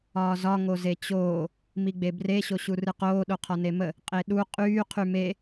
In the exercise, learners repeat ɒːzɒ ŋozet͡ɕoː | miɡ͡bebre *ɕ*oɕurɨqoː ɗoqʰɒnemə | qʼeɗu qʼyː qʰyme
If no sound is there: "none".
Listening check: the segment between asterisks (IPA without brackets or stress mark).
ɕ